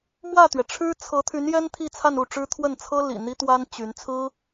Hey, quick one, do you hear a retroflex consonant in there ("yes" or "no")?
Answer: yes